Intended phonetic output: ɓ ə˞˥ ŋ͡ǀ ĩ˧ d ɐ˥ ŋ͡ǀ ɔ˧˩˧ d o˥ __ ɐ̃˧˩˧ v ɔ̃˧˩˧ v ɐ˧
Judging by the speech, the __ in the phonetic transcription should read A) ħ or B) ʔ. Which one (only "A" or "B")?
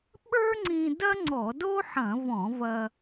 A